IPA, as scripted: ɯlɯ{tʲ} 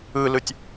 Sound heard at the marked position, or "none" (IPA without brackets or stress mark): tʲ